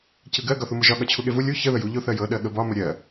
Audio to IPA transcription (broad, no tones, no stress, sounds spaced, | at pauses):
c ɯ ɡ ɜ ɡ ɒ θ u m ɯ ʒ ɒ ɠ ɒ t͡ɕʰ u ɠ e v u lʲ u ç ə ð ə j u ʎ o θ ɜ j ɤ ɗ ɜ ɠ ə b ɒ m ə ɾʲ ɜ